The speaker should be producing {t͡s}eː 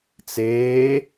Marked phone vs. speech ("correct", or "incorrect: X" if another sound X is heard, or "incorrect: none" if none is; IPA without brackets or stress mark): correct